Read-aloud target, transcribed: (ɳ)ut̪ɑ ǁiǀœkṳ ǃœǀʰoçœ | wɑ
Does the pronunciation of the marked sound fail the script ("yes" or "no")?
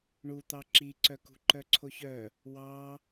no